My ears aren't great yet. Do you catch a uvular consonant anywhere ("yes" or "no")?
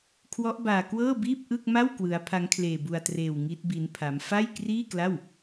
no